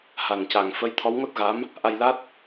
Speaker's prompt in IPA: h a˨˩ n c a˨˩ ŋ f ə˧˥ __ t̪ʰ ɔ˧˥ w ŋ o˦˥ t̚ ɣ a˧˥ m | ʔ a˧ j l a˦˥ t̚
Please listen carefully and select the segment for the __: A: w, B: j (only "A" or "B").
B